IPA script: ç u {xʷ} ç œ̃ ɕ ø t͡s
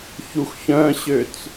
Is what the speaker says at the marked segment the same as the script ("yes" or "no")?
no